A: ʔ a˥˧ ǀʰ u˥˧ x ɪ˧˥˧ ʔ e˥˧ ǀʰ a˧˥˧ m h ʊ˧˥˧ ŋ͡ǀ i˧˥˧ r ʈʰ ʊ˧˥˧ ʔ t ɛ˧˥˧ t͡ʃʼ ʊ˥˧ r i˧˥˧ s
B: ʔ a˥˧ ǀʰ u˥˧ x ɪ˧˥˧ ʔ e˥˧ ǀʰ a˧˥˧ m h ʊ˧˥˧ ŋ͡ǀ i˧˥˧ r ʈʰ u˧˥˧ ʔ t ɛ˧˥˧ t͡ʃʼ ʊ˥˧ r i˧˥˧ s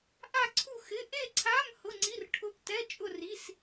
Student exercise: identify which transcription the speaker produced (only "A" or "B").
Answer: A